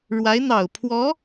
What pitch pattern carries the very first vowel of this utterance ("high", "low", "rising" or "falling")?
rising